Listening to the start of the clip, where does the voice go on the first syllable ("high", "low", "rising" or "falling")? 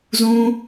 high